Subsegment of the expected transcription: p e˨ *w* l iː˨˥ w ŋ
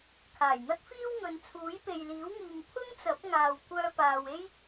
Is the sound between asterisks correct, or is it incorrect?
incorrect